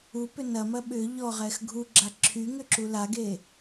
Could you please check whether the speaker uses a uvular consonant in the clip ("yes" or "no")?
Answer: yes